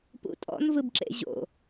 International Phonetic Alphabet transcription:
p ṵ tʼ ɔ̰ n v ɯ b ǁ ḛ ʑ o̰

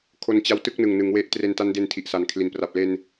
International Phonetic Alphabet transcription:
kʰ o˧ n t͡ɕ a˦˥ w t ɯ˥˩ k̚ n ɯ˨˩ ŋ n ɯ˩˦ ŋ w e˥˩ ʔ t r e˧ n t a˦˥ n d e˧ n tʰ i˨˩ ʔ s a˨˩ n kʰ l i˨˩ n p r a˨˩ p̚ l e˧ n

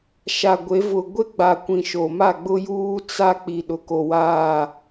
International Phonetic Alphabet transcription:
ʃ a˨ ɡʷ e˨˦ v ʊ˨ ɡʷ e˦ ɡ͡b a˨ kʷ ĩ˨ ʃ o˨ m a˦˨ ɡ͡b ʊ˦ j uː˦ t͡s a˦ k͡p i˨ ɗ ʊ˨ k o˨ w aː˦˨

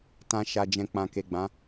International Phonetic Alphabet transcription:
t ã˨ ʃ a˨ d͡ʒ ɛ̃˨ k͡p ã˨ k e˨ ɡ͡b ã˨˦

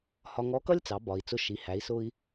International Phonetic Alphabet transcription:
h ɒ˧ ŋ ɔ˧˥ k ʌ˥ lʲ t͡s ɑ˩˧ b ɒ˩ i̯ t͡s ʊ˧ ʃ i˩˧ h æ˩˧ i̯ s ʊ˧ i̯

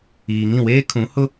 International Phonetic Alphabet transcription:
iː˨ ŋ ĩ˦˨ w eː˦ kʰ ũ˨˦ h ʊ˦

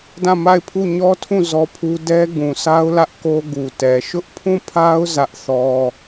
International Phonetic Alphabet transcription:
d ã˦˨ m a˦˨ ɪ̯ pʰ u˦˨ ɲ ɔ˦ tʰ ũ˦˨ z ɔ˦ pʰ u˦ d ɛ˦ ɡ ũ˨ sʰ a˦ ʊ̯ l ä˦ ʔ k o˦ ɡ u˨ t ɛ˨ ʃ ʊ˦ ʔ pʰ ũ˦˨ pʰ a˦ ʊ̯ z ä˦ ʔ θ ɔ˦

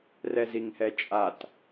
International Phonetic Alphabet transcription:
r ɛ z i ŋ h ɛ t͡ʃʼ a t

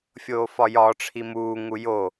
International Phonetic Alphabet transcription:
fʲ oː f ɒ j ɒ ʈ͡ʂʰ i m uː ŋ u j o

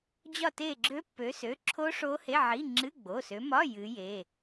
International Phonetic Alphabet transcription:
d͡ʑ ɒ˦˨ t e˦˨ ɡ͡ǁ ø˦˥ pː ø˨˦ s ø˩˧˩ ǁʰ o˦˥ ʂ o˦˥ h e˧˥˧ ʕ i˧˥˧ ŋ͡ǁ ɨ˧˥˧ ɡ͡b o˩˧˩ s ø˨˦ m ɒ˧˥˧ j ɨ˨˦ j e˩˧˩

